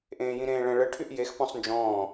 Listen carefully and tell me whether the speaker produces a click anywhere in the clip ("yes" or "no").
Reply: no